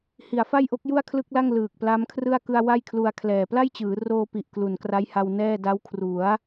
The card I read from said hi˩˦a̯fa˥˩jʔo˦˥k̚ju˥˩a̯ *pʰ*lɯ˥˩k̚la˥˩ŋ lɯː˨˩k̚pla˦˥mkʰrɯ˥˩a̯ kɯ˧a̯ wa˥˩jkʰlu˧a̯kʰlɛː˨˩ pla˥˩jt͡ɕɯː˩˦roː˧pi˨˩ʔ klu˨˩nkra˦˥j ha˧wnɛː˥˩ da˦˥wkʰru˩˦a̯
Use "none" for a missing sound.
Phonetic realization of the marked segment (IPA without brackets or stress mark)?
kʰ